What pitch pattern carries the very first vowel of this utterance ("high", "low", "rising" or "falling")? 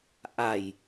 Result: low